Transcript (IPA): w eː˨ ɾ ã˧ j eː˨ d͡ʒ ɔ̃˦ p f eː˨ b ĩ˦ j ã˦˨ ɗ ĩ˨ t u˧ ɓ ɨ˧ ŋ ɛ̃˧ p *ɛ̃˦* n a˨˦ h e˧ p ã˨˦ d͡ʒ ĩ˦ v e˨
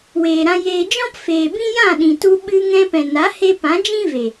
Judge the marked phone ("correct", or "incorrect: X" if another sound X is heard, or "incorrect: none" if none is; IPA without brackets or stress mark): incorrect: ɛ̃˨